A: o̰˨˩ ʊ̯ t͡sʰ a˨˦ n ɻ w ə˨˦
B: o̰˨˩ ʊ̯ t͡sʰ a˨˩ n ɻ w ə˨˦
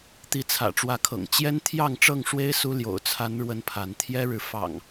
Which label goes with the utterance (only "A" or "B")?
A